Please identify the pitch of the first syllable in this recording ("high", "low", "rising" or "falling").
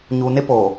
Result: low